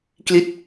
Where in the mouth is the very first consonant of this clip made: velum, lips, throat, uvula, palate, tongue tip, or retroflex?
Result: velum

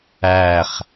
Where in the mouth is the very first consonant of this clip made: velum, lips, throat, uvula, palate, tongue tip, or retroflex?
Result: uvula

